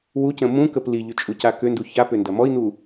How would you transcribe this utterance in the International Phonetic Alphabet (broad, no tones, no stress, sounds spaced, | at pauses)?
w u c ə̃ m ũ k ə p l i ʎ ʏ t͡ʃʼ u c a k ʏ n d u ç a p ʏ n d ɐ m ɔ i̯ n̪ u